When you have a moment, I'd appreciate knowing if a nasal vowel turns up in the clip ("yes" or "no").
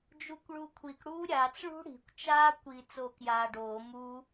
no